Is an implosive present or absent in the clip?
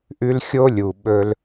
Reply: present